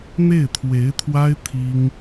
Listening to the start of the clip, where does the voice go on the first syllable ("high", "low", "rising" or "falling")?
falling